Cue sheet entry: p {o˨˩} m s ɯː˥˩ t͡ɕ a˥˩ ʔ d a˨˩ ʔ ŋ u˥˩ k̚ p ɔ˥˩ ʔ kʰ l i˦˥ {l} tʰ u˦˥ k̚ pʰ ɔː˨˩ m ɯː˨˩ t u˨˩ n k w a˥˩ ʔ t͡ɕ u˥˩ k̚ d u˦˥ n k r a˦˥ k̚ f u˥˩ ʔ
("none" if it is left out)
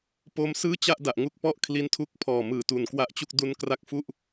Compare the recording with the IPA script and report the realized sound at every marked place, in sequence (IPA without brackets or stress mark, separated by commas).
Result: o˦˥, n